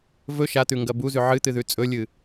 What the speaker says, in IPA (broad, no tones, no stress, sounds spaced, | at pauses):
v ɵ ʃ a t̪ ʉ ŋ ɡ ɐ b u z ʉ ʕ ɨ t̪ ɨ ð ʉ t͡sʼ ɵ lʲ ɨ